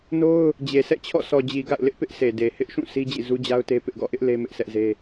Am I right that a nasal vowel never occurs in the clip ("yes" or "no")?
no